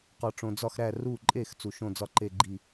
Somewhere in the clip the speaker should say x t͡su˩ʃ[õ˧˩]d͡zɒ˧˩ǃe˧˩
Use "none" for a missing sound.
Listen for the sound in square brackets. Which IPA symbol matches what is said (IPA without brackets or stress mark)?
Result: õ˧˩